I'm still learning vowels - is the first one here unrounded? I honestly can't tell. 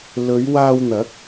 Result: no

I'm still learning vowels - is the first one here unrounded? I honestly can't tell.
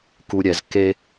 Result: no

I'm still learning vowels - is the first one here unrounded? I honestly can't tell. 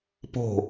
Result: no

